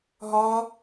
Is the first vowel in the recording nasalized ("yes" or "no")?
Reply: no